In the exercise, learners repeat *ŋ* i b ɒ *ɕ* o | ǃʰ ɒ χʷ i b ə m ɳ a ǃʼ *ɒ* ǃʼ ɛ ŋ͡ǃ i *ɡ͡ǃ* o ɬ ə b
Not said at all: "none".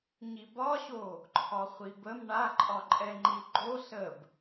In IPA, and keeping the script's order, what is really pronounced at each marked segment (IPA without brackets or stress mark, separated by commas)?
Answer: ɲ, ɕ, ɒ, ɡ͡ǃ